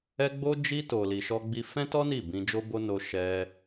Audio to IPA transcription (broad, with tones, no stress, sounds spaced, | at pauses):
ɛ˧ ɡ͡b o˧ d͡ʒ i˧ t o˨ l i˨ ʃ ɔ˧ ɡ͡b i˧ f ɛ̃˦ t ɔ˦ n i˦˨ b ĩ˧ d͡ʒ o˦ b o˦ n o˧ ʃ ɛ˧